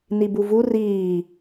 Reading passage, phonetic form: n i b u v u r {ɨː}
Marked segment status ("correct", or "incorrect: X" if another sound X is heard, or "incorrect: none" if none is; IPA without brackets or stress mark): incorrect: iː